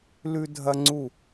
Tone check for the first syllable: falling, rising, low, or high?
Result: high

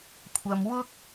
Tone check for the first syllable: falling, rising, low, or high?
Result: low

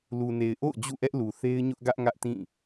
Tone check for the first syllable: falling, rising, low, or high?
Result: low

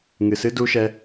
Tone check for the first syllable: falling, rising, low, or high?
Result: low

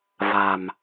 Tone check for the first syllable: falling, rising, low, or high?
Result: low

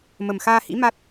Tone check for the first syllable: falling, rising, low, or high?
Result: low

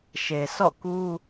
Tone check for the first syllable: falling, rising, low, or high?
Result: low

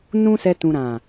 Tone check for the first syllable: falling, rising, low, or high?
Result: high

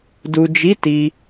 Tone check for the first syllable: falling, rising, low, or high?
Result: low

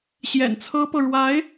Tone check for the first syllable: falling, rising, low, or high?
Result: low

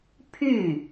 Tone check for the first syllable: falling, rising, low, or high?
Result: falling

